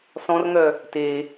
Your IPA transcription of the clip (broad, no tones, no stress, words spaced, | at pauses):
sɔ̃rŋœ | te